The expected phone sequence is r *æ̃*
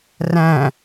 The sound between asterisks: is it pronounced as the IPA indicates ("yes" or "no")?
yes